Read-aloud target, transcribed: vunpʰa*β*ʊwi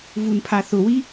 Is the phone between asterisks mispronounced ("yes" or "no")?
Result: yes